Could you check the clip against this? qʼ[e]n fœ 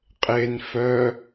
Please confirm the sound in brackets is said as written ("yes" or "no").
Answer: yes